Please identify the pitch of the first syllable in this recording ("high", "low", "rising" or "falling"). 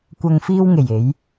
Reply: low